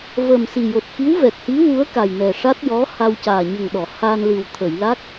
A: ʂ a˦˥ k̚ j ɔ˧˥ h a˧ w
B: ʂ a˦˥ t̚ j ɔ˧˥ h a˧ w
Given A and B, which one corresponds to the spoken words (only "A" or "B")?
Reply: B